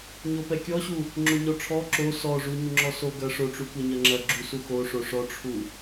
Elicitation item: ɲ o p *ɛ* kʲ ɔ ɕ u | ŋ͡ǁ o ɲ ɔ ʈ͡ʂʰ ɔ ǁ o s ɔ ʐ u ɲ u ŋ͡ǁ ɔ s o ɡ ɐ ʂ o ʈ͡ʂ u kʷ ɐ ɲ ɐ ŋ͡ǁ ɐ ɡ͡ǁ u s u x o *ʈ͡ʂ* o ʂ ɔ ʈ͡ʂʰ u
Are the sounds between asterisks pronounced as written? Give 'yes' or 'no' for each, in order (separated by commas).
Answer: yes, no